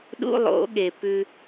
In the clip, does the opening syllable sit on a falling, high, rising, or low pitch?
high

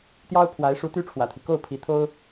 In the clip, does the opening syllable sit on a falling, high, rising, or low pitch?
high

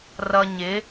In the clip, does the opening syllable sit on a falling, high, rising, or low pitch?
low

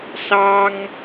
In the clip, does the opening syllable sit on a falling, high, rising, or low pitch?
high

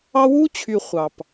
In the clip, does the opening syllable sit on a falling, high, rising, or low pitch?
high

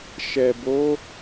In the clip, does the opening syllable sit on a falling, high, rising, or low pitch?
low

